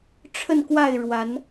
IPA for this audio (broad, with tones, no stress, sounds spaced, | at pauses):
ʈ͡ʂʰ ə˥˨ n k w a˥˨ ɪ̯ ɻ w a˨˦ n